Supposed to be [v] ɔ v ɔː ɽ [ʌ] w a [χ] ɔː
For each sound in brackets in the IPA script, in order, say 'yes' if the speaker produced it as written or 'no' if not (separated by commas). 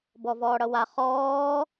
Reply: no, yes, yes